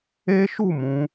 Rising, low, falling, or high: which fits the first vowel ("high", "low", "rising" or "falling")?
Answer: high